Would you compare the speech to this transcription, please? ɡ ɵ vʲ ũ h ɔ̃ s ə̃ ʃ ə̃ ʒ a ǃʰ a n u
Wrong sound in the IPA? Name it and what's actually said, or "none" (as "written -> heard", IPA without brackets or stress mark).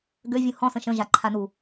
ɵ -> ø